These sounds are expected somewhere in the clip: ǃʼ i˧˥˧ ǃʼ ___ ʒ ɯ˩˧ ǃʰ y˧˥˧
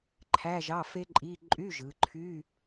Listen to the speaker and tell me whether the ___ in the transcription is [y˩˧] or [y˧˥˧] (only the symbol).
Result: y˧˥˧